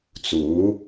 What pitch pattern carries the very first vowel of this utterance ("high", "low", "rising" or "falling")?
rising